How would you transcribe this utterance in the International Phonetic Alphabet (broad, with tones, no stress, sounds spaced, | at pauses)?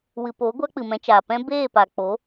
w ɨ˨ p o˨˦ ɡʷ a˦ k͡p ɨ˨ m ɛ̃˧ t͡ʃ aː˨ p ɛ̃˦ b eː˦˨ p a˨ k͡p o˨˦